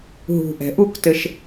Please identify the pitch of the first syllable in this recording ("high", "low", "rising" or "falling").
low